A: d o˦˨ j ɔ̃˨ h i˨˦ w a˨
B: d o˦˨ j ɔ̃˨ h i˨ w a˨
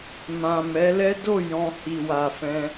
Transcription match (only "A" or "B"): B